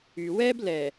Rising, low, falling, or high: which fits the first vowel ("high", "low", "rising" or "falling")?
low